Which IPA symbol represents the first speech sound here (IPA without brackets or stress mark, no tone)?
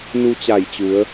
n